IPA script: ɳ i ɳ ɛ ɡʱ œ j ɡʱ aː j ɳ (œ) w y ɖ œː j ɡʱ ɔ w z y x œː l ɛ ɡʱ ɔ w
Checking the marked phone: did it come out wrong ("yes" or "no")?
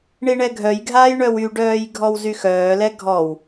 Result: no